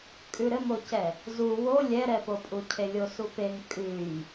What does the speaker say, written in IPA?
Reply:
kʼʉɾɘmocɛ | zu wo lʲɛɾɛpopʼu cʰelʲosupeŋ kʼʉj

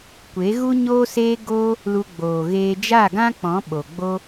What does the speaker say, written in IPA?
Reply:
kʷe˨˦ɣu˦ ɲoː˦seː˦ ɡoː˦ | lu˧ɡ͡boː˨ɣeː˧ d͡ʒa˦˨ɡã˦ k͡pɔ̃˨˦ɓo˨ ɡ͡bo˧

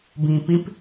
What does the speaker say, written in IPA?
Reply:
bĩpĩp

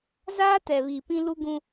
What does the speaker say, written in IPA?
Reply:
zaː˦tɛ˨ βi˨pĩ˦ lu˦ɡũ˦

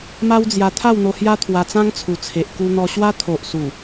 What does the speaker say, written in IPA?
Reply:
ma˦wd͡zja˧ t̪ʰa˥˧wn̪o˧hja˦ t̪ʰwa˧t͡sã˦ŋt͡sʰu˨˩t͡sʰe˨ʔ ku˧n̪ɔ˧ɕwa˦ t̪ʰo˨ʔsu˨˩

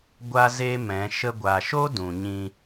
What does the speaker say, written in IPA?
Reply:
ɡʷa˦ze˦mɛ̃˨˦ ʃə˧ɡʷa˨ʃo˦ dũ˨ɲĩ˧

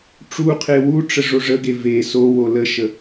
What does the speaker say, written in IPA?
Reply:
ʈ͡ʂuqʰe wuʈ͡ʂə ʐoʐəɡe ve so woləʃə

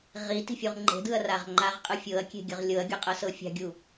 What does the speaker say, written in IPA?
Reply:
ʁi ti̤fʲuʁŋ͡ǃe̤dɯɐ̯ raʁŋ͡ǃaʁqʼɯ fʲɤɐ̯kʲe̤ɡʲɤʁ lʲɤɐ̯ɡʲɔqʼɤ sɤfʲa̤ɡʲu

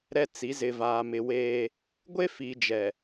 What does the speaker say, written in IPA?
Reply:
ɾɛ˦t͡si˨˦ zɪ˨vaː˨mɪ˨weː˦ | ɡʷe˦fi˨d͡ʒɛ˨

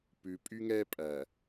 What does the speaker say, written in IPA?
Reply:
pʉ˨pʼy˦ŋɛ˦ pʼæ˨

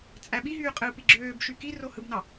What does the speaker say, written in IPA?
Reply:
t͡sʼæɓiɦyː qʼɯːpiɡ͡ǁøːbʃy ki rohɯbnɑ

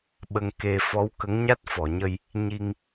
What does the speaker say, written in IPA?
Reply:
ɓə˧ŋ ke˧ fɔ˧˥wkə˧˥ŋ ɲa˦˥t̚fɔ˨˩˨ɲə˧j | ɲi˧ŋ

